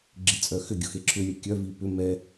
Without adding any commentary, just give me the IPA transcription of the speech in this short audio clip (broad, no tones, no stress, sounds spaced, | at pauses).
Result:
ɡ͡ǁ i t͡sʼ œ x ʏ ɡʲ ʊ x e ǁʰ ʏ lʲ ɛ kʲ œ v i p ʏ m ɛ